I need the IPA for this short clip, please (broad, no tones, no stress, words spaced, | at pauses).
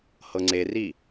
hɤŋ͡ǀeri